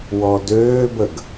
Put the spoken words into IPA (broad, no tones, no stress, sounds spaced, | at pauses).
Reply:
w ɔ d øː b ə ɡ